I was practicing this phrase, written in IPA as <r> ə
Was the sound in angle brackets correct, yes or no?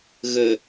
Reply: no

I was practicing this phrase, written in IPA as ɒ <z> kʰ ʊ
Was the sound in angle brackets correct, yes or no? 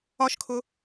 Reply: no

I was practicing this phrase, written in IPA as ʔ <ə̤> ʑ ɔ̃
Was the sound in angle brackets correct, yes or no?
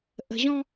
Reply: yes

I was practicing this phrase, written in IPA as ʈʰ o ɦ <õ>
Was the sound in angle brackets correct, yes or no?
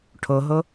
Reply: no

